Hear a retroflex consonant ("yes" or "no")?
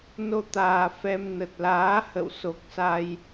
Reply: no